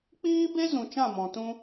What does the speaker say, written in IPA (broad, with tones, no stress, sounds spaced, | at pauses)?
k͡p iː˦ b e˦ z ũ˨ t͡ʃ ã˦˨ m ɔ̃˨ t ũ˧